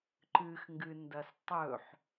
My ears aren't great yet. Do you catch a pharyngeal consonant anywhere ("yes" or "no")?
yes